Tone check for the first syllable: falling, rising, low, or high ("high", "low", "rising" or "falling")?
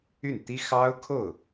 falling